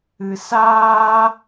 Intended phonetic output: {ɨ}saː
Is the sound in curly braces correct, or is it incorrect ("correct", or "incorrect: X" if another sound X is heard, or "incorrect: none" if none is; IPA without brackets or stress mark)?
correct